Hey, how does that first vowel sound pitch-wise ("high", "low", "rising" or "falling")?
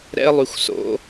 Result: high